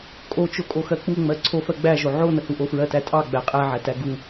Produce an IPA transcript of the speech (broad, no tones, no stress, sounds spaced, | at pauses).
kʼ o t͡ʃ o kʼ o x ɜ k͡p u ŋ͡m ɜ ǀʰ o f ɜ ɡ͡b æ ʒ o ʕ o n ə h u ʔ o f ɹ ɜ t æ tʼ ɑ ɡ͡b æ qʼ æ ʕ æ t æ ɡ u